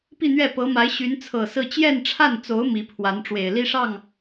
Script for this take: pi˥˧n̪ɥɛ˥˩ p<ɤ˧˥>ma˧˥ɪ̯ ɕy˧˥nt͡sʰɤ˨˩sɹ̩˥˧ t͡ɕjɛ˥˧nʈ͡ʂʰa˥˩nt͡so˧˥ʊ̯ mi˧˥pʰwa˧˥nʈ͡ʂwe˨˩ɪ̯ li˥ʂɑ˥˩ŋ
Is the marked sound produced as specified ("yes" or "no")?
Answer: yes